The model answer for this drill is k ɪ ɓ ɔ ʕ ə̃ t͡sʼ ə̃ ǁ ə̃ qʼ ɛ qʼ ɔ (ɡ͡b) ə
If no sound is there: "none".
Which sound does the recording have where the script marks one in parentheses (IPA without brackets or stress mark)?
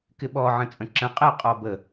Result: b